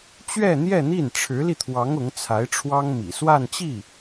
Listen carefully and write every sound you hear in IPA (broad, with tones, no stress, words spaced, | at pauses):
t͡ɕɥɛ˥˧n̪jɛ˥˧n̪i˥˩n ʈ͡ʂʰɻ̩˧˥li˧t̪ʰwɑ˧˥ŋ ʊ˧˥ŋt͡sʰa˧˥ɪ̯ʈ͡ʂʰwɑ˥ŋ mḭ˨˩ swa˥˧nt͡ɕi˥˩